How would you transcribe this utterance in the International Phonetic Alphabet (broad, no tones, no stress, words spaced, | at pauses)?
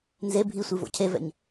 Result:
nze bʱisʷi vo̰cʰevɛ̰ɲ